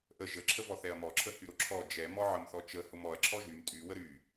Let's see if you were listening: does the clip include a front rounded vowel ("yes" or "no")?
yes